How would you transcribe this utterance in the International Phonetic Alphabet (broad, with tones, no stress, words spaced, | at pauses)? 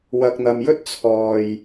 wɐ˧k̚n̪ɐ˧mjɵ˥t̚ t͡sʰɔː˨j